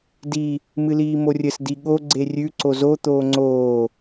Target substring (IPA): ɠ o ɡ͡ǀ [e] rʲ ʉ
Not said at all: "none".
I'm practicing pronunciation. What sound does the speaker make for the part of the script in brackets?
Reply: e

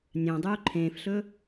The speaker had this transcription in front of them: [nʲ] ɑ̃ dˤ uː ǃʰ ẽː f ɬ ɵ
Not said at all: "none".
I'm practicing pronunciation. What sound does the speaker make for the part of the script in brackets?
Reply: nʲ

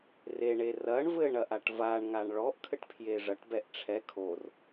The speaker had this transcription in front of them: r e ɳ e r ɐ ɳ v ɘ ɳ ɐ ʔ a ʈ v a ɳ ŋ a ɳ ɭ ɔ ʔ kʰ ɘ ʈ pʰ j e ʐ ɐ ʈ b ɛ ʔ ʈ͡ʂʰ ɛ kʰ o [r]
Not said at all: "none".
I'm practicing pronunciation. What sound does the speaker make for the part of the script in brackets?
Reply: r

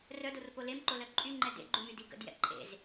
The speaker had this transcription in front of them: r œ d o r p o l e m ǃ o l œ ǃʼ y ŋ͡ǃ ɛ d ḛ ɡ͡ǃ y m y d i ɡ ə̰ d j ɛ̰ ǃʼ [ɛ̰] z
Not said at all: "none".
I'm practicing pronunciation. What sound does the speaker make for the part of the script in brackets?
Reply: ḛ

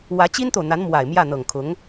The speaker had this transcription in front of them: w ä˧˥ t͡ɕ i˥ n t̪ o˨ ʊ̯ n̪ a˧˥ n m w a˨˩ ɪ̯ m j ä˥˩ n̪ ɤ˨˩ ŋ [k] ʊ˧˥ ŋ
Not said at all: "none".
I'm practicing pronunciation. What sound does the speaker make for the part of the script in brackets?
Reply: kʰ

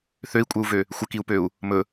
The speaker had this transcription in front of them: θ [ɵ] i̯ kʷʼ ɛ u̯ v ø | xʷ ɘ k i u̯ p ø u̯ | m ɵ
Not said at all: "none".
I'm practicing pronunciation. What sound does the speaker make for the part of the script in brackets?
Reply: ø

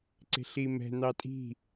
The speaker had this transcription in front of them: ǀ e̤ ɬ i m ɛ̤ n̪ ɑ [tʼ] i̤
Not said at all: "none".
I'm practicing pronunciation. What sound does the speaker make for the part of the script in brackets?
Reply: tʼ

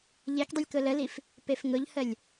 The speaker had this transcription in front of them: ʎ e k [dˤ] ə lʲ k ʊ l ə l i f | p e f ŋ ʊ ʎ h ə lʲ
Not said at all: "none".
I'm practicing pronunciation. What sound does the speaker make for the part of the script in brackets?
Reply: dˤ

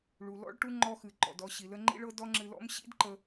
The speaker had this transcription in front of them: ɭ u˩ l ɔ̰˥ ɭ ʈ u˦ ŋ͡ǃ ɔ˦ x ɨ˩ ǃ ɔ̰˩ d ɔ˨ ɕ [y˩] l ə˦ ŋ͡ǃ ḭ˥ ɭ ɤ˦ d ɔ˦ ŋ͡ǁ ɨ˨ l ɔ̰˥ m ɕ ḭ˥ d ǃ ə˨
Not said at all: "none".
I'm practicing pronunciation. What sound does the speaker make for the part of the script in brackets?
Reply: i˩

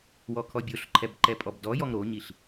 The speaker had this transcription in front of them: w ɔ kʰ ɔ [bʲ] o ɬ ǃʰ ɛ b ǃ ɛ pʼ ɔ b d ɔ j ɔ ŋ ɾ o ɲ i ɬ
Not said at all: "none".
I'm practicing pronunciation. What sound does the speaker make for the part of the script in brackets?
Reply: bʲ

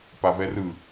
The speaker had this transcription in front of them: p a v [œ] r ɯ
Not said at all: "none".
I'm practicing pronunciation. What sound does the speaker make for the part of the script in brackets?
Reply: ɛ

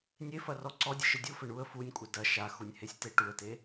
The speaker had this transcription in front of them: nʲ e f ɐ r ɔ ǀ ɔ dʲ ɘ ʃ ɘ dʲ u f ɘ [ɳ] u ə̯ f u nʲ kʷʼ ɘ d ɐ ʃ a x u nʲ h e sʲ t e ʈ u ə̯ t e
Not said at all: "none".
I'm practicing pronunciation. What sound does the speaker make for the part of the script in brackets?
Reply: ɳ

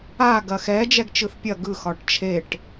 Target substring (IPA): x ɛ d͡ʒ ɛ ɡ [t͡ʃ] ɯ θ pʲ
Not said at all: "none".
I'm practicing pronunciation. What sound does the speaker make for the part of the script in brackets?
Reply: t͡ʃ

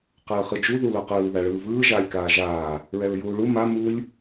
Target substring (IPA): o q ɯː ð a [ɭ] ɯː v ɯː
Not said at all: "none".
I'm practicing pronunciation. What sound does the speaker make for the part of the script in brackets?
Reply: ɭ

